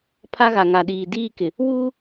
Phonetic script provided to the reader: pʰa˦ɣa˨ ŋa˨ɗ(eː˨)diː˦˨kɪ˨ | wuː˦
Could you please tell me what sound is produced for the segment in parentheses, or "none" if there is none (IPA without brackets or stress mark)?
iː˨